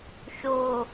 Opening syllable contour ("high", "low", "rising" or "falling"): low